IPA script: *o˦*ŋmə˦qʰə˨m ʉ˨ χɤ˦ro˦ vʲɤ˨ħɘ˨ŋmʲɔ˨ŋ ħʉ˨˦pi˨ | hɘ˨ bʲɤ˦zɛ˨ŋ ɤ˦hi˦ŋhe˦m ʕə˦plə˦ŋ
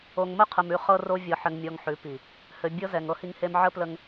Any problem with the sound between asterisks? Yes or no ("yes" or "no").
yes